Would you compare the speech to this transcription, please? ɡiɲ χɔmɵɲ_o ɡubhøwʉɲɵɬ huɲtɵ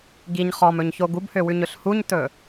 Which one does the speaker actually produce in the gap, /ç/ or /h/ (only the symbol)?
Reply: ç